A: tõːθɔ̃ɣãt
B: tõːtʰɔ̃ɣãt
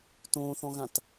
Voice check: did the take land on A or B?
A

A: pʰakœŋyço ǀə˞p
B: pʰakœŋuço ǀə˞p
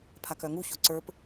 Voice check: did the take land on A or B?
B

